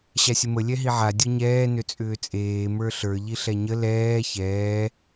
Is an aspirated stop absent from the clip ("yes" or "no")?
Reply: yes